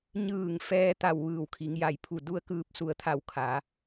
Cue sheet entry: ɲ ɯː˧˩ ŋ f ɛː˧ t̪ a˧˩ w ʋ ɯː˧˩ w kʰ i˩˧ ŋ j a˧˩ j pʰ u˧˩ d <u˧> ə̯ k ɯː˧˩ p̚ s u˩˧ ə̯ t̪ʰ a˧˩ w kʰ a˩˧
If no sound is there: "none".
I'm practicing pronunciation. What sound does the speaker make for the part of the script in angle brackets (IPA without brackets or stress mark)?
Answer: u˧